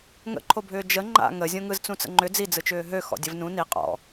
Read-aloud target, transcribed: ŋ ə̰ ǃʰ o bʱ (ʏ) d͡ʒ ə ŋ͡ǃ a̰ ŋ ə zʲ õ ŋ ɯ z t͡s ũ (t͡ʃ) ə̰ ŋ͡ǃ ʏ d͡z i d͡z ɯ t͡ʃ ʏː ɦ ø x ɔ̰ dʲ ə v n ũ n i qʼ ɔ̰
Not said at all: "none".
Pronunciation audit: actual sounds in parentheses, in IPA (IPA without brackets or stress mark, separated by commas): ʏː, t͡s